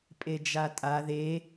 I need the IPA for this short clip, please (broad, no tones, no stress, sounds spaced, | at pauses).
pʼ e d͡ʒ a tʼ a ð e